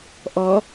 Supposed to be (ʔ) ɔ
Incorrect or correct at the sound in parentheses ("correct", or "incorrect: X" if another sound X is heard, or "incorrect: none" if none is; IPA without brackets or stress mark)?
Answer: correct